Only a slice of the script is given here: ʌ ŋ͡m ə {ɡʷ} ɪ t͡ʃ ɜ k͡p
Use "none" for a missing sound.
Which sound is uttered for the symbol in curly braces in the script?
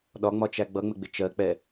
ɡ͡b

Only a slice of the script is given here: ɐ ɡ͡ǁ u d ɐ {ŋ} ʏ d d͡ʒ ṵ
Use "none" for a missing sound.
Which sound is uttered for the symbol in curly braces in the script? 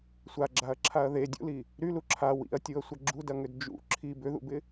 ŋ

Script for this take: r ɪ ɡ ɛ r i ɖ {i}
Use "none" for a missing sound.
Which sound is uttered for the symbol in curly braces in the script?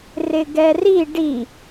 i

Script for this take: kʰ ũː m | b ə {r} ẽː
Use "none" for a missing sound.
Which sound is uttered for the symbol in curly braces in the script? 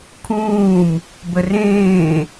r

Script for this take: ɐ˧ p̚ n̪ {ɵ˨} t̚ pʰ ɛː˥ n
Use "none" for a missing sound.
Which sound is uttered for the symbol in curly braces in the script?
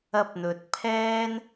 ɵ˨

